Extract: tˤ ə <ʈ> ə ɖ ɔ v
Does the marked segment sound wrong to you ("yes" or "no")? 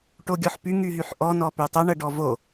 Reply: yes